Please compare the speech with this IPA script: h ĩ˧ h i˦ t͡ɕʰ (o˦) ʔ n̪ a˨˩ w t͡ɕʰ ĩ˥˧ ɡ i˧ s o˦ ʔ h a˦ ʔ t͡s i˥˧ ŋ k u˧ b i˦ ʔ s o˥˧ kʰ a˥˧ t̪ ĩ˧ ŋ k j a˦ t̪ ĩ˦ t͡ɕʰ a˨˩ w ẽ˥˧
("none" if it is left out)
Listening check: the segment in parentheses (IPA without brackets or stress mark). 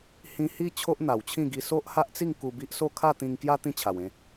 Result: o˦